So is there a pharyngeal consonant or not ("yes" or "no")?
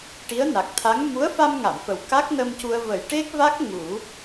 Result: no